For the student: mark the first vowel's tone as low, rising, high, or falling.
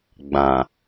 low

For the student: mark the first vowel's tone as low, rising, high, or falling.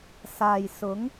low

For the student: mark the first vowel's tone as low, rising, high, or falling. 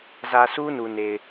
low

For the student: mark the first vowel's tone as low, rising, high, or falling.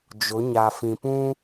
rising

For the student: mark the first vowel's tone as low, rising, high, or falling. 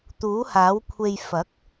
rising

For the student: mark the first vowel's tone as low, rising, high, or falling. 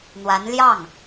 rising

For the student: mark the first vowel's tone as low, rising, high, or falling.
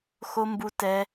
high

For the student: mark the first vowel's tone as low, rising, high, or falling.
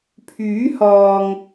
rising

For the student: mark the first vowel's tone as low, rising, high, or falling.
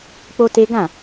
high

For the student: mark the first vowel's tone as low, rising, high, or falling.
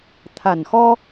low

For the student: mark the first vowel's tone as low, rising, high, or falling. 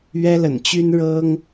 high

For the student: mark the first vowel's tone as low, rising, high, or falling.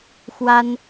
high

